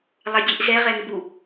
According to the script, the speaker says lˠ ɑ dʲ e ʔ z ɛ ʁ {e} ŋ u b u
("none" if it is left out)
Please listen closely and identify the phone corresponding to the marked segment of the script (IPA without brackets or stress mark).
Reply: ɛ